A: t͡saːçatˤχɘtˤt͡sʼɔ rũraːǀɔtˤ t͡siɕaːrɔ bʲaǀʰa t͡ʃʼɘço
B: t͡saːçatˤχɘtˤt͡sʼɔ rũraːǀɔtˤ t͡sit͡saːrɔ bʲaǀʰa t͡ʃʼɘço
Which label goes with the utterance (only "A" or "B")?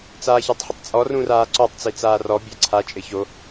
B